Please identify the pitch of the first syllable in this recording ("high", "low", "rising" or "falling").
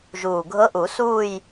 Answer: low